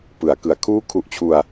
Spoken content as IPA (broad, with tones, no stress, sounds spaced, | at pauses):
p ɯ˩˦ a̯ k ɯ˩˦ a̯ kʰ uː˥˩ kʰ u˦˥ ʔ t͡ɕʰ u˧ a̯